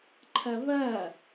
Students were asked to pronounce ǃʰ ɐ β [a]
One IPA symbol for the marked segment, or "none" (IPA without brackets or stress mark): ɐ